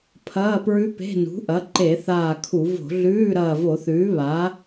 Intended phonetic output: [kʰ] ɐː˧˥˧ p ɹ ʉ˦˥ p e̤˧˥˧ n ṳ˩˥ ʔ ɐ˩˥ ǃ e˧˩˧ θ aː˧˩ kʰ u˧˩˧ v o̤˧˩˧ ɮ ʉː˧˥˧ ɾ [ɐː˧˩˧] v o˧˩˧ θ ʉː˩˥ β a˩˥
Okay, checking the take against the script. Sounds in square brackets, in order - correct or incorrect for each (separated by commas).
incorrect, incorrect